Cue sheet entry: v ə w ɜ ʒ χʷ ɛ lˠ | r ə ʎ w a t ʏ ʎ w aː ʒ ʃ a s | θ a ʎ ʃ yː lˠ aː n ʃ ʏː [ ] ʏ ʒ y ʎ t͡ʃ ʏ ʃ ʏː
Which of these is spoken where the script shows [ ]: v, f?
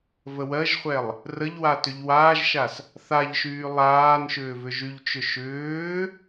v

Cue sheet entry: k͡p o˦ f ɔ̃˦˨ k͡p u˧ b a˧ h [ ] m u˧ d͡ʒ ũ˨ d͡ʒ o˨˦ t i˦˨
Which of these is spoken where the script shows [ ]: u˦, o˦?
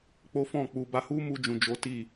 u˦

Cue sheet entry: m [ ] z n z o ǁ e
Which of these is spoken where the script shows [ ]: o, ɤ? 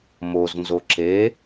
o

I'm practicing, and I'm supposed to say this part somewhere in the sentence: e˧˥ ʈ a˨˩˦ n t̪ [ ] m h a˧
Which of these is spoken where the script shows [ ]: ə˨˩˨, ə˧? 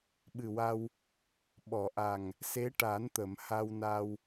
ə˨˩˨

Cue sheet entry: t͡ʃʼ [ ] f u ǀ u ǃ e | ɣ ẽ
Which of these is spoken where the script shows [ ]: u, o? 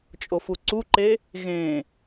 o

